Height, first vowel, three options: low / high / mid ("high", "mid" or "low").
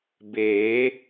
mid